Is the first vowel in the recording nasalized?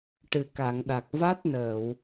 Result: no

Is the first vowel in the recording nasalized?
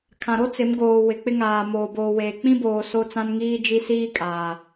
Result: yes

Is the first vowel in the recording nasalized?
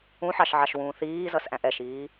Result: yes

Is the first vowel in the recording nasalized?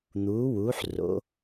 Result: no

